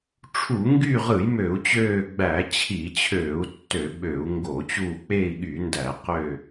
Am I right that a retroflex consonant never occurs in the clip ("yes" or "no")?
no